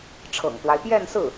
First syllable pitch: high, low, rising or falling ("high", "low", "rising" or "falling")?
low